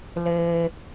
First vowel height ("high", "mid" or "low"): mid